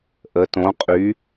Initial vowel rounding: unrounded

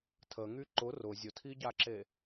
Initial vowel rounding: unrounded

